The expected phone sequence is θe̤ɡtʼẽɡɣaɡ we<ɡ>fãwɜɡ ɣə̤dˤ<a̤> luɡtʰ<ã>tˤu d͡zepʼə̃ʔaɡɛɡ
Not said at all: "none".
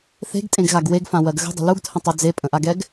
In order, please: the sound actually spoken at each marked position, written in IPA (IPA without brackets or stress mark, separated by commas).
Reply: ɡ, ə̤, ə̃